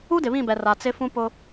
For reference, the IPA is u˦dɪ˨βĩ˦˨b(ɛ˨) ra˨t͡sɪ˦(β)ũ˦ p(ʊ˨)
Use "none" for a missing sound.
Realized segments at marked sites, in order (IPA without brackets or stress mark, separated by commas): ɛ˨, f, ʊ˦